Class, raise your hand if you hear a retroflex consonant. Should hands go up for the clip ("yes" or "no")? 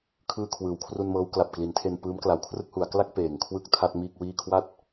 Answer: no